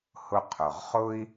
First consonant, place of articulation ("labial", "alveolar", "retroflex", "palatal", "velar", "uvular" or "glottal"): glottal